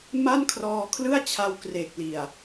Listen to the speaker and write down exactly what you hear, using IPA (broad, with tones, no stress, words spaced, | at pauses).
ma˥˩nkʰrɔː˧kʰlɯ˥˩a̯t͡ɕʰa˧w kre˨˩k̚li˨˩a̯